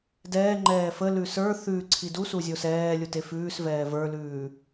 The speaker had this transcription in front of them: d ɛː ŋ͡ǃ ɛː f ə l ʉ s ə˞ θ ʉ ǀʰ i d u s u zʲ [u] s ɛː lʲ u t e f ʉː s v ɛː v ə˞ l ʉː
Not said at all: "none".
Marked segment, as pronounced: o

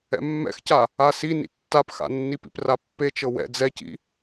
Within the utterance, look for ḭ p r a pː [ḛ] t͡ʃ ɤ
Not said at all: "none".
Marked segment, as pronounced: e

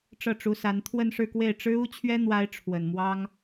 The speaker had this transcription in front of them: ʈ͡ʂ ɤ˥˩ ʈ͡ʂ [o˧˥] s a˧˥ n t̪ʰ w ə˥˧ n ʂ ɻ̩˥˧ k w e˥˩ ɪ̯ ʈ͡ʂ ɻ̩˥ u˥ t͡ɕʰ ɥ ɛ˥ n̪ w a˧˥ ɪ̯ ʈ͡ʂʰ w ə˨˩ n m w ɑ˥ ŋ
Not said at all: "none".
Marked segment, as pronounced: u˧˥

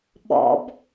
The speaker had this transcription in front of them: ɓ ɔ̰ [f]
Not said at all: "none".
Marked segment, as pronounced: b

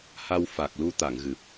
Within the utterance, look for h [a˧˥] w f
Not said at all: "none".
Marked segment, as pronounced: a˧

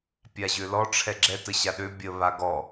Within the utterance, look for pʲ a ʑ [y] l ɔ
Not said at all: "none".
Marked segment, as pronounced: ø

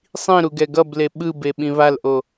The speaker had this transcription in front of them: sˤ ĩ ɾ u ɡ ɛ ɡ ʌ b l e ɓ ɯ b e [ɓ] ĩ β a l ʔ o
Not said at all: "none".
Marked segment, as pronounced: ɓ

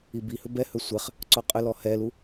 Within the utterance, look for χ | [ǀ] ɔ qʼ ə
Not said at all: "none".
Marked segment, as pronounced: ǀ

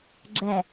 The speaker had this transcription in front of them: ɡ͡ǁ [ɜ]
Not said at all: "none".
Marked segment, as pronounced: ɛ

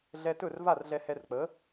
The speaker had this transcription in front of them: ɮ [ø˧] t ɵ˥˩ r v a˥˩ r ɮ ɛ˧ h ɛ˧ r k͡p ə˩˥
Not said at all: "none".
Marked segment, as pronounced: ɛ˧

